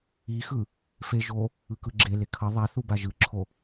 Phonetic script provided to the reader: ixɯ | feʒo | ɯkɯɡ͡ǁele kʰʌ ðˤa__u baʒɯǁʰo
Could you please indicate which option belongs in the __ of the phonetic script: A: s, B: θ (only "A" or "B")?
B